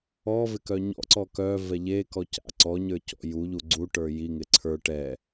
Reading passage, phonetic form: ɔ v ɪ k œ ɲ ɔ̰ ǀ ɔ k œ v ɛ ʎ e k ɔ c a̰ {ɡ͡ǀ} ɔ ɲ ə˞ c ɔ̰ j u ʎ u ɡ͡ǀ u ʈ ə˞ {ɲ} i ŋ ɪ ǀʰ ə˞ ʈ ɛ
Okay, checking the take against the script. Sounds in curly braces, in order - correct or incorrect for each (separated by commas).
incorrect, incorrect